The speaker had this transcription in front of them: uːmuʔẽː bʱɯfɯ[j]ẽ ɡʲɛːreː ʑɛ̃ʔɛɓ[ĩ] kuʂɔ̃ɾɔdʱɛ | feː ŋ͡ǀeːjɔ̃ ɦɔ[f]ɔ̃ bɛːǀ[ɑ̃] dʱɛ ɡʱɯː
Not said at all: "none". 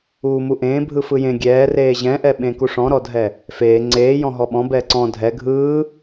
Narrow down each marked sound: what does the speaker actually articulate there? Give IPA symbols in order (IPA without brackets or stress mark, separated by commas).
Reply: j, ẽ, ɓ, ɔ̃